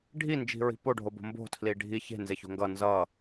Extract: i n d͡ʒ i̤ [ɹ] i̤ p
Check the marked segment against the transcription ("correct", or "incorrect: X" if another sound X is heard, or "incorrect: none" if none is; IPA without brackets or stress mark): correct